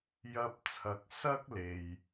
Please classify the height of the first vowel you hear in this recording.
low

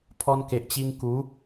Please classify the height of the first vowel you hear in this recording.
mid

